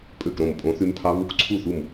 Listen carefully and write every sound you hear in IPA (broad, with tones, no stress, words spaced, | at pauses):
pʼø˥˨kɾõ˥˨m pʼõ˦˥θy˦˥mpʰɑ˦˥ βu˦˥kǀʰu˥˨θu˥˨m